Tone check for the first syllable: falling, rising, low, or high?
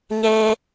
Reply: high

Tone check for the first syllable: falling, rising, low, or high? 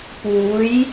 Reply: rising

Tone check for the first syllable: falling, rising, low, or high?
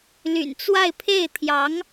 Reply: low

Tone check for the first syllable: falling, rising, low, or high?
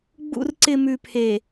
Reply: low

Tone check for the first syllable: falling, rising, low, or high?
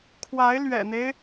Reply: rising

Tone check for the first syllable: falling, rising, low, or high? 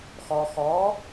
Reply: low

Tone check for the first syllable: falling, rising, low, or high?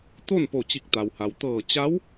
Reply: falling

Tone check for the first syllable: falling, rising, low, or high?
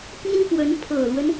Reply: high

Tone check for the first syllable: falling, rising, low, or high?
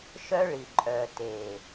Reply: high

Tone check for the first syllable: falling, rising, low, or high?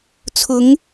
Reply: rising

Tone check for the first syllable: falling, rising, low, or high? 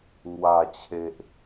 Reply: low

